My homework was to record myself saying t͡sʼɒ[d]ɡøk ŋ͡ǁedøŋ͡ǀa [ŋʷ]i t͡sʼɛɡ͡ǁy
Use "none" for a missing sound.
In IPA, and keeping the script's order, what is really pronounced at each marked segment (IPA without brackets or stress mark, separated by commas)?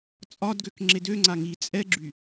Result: d, ŋ